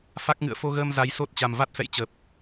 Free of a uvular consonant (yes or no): yes